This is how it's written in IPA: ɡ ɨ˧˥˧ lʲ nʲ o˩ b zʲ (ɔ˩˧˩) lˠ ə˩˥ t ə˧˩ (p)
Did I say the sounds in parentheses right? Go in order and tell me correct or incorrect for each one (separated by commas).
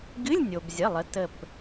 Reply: incorrect, correct